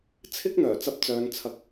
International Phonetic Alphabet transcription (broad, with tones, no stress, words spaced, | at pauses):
t͡sʰɪ˥k̚n̪œː˨˩ t͡sɐ˧p̚t͡sœː˨˧n t͡sʰɐ˨k̚